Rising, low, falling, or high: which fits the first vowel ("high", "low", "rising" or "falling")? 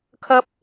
high